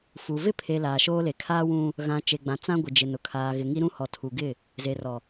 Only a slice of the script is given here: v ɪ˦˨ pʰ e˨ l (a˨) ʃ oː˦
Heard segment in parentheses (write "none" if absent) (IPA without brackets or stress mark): a˨